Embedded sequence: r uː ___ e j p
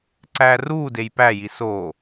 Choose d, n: d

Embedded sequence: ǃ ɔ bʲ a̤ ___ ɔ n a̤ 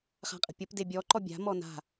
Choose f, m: m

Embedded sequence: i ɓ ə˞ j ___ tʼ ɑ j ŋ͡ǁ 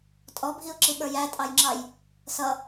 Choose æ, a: æ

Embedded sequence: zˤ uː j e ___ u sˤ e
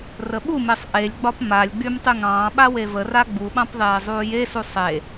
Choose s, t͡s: s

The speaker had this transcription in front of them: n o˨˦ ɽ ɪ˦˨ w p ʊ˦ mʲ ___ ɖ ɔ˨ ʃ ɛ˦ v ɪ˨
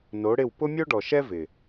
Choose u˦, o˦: o˦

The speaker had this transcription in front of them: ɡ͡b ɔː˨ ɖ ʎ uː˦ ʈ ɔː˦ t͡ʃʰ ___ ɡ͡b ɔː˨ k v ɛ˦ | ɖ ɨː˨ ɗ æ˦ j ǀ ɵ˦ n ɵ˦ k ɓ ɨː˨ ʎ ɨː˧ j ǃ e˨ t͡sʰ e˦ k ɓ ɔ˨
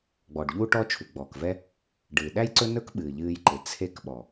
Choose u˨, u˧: u˨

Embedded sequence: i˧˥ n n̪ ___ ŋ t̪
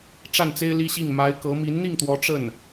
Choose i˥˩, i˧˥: i˥˩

